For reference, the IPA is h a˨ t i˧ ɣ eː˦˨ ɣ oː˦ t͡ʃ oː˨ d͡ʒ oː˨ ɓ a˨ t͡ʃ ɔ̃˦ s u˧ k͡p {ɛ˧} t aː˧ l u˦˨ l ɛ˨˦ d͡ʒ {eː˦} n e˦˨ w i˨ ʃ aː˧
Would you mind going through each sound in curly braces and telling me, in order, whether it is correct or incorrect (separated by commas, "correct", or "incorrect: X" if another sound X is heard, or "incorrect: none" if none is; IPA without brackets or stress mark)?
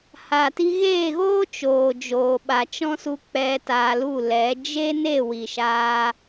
correct, incorrect: e˦